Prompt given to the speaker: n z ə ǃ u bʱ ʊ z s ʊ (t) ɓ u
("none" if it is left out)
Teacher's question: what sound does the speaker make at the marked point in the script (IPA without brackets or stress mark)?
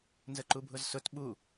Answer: t